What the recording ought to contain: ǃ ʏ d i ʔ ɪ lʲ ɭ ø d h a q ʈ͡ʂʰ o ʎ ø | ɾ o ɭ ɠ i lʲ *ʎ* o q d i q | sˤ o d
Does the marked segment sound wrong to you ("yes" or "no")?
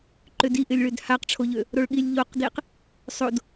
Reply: no